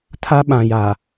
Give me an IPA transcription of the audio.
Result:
tʰ a˦ ɓ ã˨ j a˨

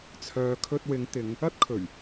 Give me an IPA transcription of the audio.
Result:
t͡sʰ œː˨ kʰ ɵ˧ t̚ w ɪ˨˧ ŋ t̪ ɪ˨˧ ŋ | ɐ˥ t̚ kʰ ɵ˨˩ ɥ

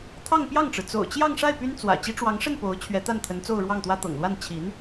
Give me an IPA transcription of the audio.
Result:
t̪ʰ ɑ˥˧ ŋ p j ɑ˥˩ ŋ ʈ͡ʂ ɻ̩˩ t͡s o̰˨˩ ʊ̯ t͡ɕ j ɑ˥˧ ŋ ʂ a˥˩ ɪ̯ p y˥ n t͡s w ä̰˨˩ t͡ɕ i˧˥ ʈ͡ʂ w ɑ˧˥ ŋ ʂ ə˥˩ n p o˧˥ ʊ̯ t͡ɕʰ ɥ ɛ˧˥ t̪ a˥˩ n t̪ʰ ə˧˥ n t͡s o˥˧ ʊ̯ ɻ w ɑ˥˩ ŋ t̪ w ä˥ t̪ ɤ̰˨˩ ŋ l w a˥˩ n t͡ɕʰ i˧˥ n

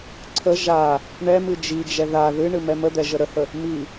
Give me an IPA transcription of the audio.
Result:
ǀʰ ə ʒ a | ɳ ɛ m ɨ d͡ʒ i d͡ʒ ɛ ð a ð ɨ ɳ ɨ m ɛ m ə d̪ ɛ ʒ ə ɾ ə h ə | m i

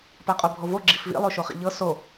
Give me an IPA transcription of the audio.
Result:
p a qʼ o bʱ o v o ɡ͡ǁ i f v ḭ lˠ o ʃ o χ ḭ ʎ ɤ s o

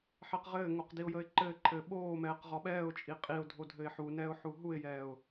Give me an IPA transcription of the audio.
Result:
ħ ɛ q ʁ ɘː ŋ o q d i ʊ̯ j ə ɪ̯ ǃ ɘː ǃʰ ɘː ɓ oː m ɛː q ʁ ɒ ɓ ɛː ʊ̯ t͡ʃʼ i qʼ i ʊ̯ dʱ o dʱ ɘ ɪ̯ ħ u n ɛː ʊ̯ ħ u ɦ u ɪ̯ j ɛː ʊ̯

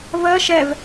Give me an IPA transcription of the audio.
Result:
v ɜ ʃ ɛ v

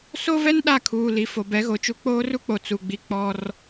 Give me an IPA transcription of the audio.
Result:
s o˦ v ɛ˦ n ɗ a˦˨ kʰ uː˨ l i˨ f o˨ b ɛ˨˦ ɣ o˨ t͡ʃ u˦ k͡p oː˦ r u˦ k͡p o˨ t͡s u˨ ɡ͡b i˦ k͡p ɔ˦ r

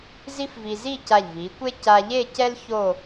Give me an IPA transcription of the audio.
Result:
z i˥ f v i˧ z i˥˧ c a˧˩ ʎ v i˩˧ kʷ e˥ c a˧ ʎ e˥˧ c ɛ˥ l ç o˥˧

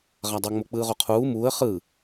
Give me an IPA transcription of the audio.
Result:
ʁ a dˤ ɤ ŋ͡m o k͡p ɯː ʁ o qʰ uː m uː ə̯ χ ɯ

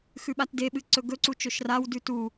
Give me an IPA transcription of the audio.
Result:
x ʉ ɓ a t d e ɓ ɨ ǀ ɵ ɡ ɵ ǀ u t͡ʃ ɵ ʃ r a w d ʉ t u

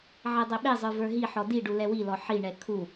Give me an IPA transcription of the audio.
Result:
ʕ ɛ dˤ ɛ ɓ e zˤ ə˞ v ə˞ ɦ i ħ ɔ d i ɖ u l ɛ w i l ɔ ħ i ɳ ɛ kʰ u

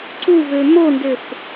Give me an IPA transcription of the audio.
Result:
ǀ u v ø m o n d ø f

